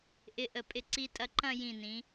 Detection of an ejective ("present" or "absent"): present